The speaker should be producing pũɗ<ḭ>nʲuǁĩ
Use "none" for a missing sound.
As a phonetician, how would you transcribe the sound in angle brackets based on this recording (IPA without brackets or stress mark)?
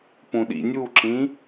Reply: ḭ